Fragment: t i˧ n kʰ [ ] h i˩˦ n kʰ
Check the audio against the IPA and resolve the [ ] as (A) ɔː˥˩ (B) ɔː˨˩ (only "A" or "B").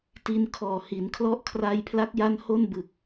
B